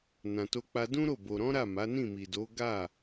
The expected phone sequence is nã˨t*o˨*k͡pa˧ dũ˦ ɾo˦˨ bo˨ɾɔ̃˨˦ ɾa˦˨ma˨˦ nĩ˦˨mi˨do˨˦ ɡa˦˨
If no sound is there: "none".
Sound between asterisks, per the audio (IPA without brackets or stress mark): o˧